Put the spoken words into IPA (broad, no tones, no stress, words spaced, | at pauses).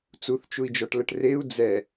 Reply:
t͡suθt͡ʃui̯d͡ʒɔʈləʈ reu̯ d͡zɛ